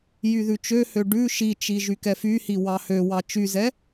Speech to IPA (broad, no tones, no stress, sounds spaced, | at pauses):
j y ð ʉ t͡ʃ ø h ø ɖ ʉ ʃ i t͡ʃ i ʒ y k ɛ f y h i w ɑ h ø w ɑ t͡ʃ y z ɛ